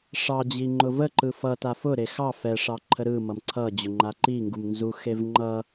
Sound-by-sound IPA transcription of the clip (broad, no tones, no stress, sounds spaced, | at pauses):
ʂ ɑ d͡ʑ i ŋ͡ǃ ʊ v ə ǃ ɯ f ʌ t a f ʊ ɾ e x ɑ f ɛ ʂ ɑ ǃʰ ə ɾ ɯ m ʌ m ǀʰ ʌ d͡ʑ ʊ ŋ͡ǃ a ǃ i ŋ ɡ u m n z u x e v ŋ͡ǃ ʌ